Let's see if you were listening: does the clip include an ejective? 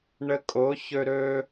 yes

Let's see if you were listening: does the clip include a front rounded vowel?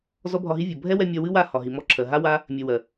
no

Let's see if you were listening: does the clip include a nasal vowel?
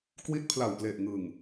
no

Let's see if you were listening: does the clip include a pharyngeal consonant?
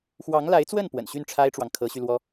no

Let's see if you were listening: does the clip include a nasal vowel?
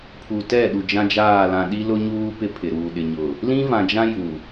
yes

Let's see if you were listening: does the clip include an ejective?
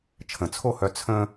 no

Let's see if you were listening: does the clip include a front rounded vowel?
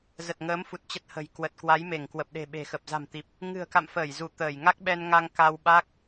no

